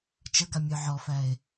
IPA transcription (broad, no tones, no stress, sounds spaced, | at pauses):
t͡ʃ ə ɡ a mʲ œ ʕ ɔ f æ e̯